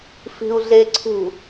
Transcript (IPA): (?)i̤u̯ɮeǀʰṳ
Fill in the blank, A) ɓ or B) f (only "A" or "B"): B